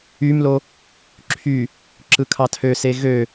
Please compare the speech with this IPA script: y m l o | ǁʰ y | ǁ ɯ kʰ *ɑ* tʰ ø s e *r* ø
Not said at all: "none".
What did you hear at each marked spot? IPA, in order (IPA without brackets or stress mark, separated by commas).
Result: ɑ, ɣ